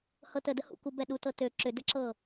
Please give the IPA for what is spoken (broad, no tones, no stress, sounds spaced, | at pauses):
h ɤ t ə d ə h ṵ k u b ɛ ɗ u t ɤ t ø ǁ ʏ d ə ǁ ɤ